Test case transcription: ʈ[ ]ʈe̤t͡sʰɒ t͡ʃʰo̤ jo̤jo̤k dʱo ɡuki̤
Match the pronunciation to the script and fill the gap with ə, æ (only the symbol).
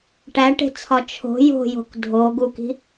æ